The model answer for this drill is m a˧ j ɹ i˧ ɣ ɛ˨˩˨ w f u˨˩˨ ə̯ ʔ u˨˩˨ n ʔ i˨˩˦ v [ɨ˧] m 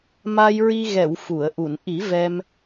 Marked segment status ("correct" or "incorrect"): incorrect